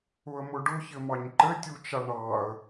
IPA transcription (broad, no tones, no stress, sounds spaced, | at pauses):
ʊ ə̯ m ʊ ɖ ʊ ç ɘ m ɑ ɲ ǃ ɘ tʲ u t͡ʃ a ɳ ɑ ə̯